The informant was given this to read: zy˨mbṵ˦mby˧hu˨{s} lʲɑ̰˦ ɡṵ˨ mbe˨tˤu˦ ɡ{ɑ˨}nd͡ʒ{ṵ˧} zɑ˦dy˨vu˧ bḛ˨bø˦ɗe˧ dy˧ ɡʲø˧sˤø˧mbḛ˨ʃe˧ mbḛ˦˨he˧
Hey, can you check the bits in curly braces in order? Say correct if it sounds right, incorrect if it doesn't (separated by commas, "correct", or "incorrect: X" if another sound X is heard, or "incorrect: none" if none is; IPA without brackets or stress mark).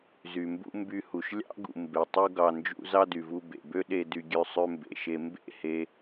incorrect: ʃ, correct, correct